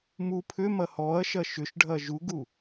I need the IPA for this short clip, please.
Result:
m u pʰ ʏ m ɐ h ɔ ɐ̯ ʃ ɐ ʃ ʏ ʃ ɖʱ ɐ ʒ u ɡ u

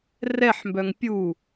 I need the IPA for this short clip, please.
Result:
r ɛ ħ m b œ ŋ pʲ u

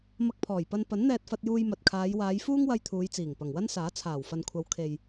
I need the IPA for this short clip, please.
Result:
m ɐ˧ k̚ pʰ ɔː˨˩ j p ɐ˧ n p ɐ˨˥ n n̪ ɛː˧ t̚ f ɐ˧ t̚ j uː˧ j m ɐ˨ t̚ kʰ aː˨˧ j w aː˨˧ j f uː˥ ŋ w ɐ˧ j t̪ʰ uː˨˧ j t͡s iː˨˩ ŋ p ɐ˨˩ ŋ w ɐ˥ n s aː˨˥ t͡sʰ aː˨˩ w f ɐ˨ n kʷʰ ɐ˨˧ w kʰ e˨ j

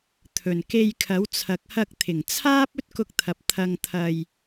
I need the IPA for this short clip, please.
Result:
t̪ʰ ɵ˨˩ n k e˧ j kʰ ɐ˨˥ w t͡sʰ ɐ˨˥ k̚ h ɐ˧ k̚ t̪ʰ ɪ˨˩ ŋ t͡sʰ aː˥ p̚ ɵ˥ t̚ k ʊ˧ k̚ t̪ʰ ɐ˨ p̚ t̪ʰ ɐ˧ ŋ t̪ʰ ɐ˧ j

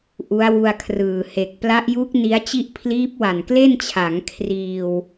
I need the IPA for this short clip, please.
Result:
ʔ u˦˥ a̯ w u˧ a̯ kʰ r ɯː˨˩ h e˨˩ k̚ p l a˦˥ ʔ j u˦˥ k̚ n i˦˥ a̯ t͡ɕ i˥˩ ʔ pʰ l iː˦˥ p̚ w a˨˩ n k l e˥˩ n t͡ɕʰ a˩˦ ŋ kʰ r iː˧ w

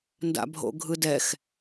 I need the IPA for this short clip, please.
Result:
n d a̰ bʱ o̰ ɡʱ ɯ d ɛ x

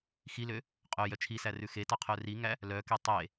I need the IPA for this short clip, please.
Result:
x i l ø | qʼ œ j œ t͡ʃʰ i s æ r ʉ x e t ɑ qʰ œ r i ŋ æ | l œ k e tˤ e

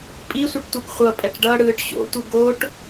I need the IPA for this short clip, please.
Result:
pʼ i sʷ ɯ ʈ tʷ e ɡ χʷ ʌ pʼ ɛ ʈ ɖ ʌ ɽ ɯː ʈ ɕ o̰ tʷ ɯ ɡ o ʈ

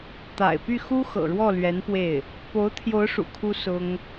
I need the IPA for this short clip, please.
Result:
t̪ a̰˨˩ ɪ̯ p y˥˩ x u˥ x ɤ̰˨˩ ɻ w ɔ˥˩ l ɥ ɛ˧˥ n p w e˥˩ ɪ̯ | p o˧˥ ʊ̯ t̪ʰ j o˧˥ ʊ̯ ʂ ṵ˨˩ kʰ u˥ s ʊ˥ ŋ

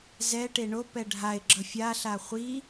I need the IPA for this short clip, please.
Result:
z ɛ ʈ e ɳ o p ɛ ɖʱ a ɪ̯ ɡ͡ǁ ʌ fʲ a ɬ a χʷ i

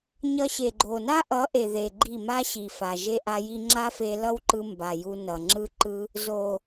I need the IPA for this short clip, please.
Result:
ɲ ʌ˧ ɕ e˨ ɡ͡ǃ o˨ n a˦ ʔ ʌ˨˦ ʔ e˨ ð e˨ ɡ͡ǃ i˦˨ m a˦ ɕ i˨ f a˨ ʒ e˧ ʔ a˧ j i˧ ŋ͡ǁ a˦ f e˧ l ʌ˦ w ǃ ɯ˧ m b a˨ j u˧ n ʌ˨ ŋ͡ǁ ɯ˦ ǃ ɯ˦ | z o˨

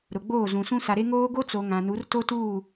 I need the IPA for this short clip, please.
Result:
ɾ ʊ˨ ɡ͡b oː˦˨ z ũ˨ s ũ˦ s a˨ ɾ e˦ ŋ oː˦ ɡ o˦ t͡s o˨ ŋ ã˨ n u˨˦ r t o˦ t uː˦˨

